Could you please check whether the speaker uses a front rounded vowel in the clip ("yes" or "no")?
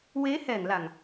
no